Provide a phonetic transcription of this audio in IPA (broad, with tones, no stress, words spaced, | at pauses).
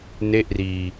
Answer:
ne˥˩ʔriː˧